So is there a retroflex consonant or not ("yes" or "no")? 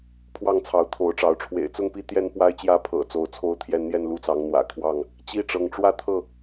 yes